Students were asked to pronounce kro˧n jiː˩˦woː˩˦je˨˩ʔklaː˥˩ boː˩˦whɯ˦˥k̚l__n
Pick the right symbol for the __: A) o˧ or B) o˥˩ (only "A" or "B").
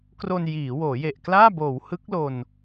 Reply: A